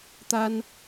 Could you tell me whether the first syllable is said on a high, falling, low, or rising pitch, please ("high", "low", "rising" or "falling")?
high